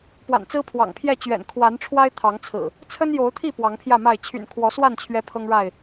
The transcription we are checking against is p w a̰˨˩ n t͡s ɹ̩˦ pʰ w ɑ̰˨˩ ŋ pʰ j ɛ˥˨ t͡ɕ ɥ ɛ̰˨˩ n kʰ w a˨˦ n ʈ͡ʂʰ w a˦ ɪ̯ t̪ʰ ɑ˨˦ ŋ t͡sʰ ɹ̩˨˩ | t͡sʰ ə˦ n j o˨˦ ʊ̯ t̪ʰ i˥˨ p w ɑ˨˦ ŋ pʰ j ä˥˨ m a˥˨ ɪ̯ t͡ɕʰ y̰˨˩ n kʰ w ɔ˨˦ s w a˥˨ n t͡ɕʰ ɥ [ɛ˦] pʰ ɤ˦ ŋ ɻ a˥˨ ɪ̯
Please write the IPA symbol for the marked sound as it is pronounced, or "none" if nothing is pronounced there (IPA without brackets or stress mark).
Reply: ɛ˦